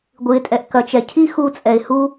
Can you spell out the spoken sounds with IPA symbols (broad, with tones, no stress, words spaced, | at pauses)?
ɡʷɨ˨ɪ̯tʼɛ˨ʔ kɐ˨t͡ʃɛ˨ cʰi˦xu˧t͡sʼɛ˨ɪ̯ hu˧